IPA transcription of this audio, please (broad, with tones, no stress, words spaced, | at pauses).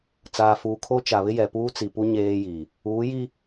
t͡saː˨fuː˨kʰo˦ t͡ʃa˨βɪ˦jɛ˨ puː˦t͡si˨pu˦ ɲeː˦ji˨ | uː˨˦ji˦